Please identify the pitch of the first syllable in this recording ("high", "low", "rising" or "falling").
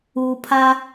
low